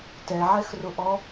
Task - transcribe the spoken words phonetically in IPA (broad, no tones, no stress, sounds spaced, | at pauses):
t ɛ ʕ ɛ x r ʊ ʔ ɔ